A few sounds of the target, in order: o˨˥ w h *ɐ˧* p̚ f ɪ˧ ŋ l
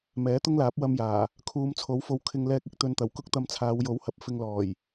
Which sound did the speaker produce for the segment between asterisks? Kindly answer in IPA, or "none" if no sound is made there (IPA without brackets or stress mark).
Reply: ɐ˨˥